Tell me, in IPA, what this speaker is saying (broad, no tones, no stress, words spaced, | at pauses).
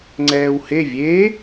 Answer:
ŋ͡ǀɛːwhe vʲe